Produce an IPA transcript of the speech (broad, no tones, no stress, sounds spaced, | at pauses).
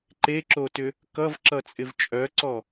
ǃ e ǁ o t ʏ | k ʌ v ǁ ʌ t͡sʼ ɪ v t͡ʃʼ œ ǀ ɔ